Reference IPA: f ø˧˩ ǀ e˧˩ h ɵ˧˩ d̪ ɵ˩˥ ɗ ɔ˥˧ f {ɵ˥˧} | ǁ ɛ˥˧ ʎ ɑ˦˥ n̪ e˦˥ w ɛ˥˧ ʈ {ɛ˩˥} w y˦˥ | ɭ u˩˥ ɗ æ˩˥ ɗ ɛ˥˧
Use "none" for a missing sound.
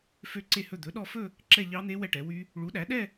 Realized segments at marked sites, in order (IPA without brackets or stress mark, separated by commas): ɵ˥˧, ɛ˩˥